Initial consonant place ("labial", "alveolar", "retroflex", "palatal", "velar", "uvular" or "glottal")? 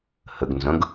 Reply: glottal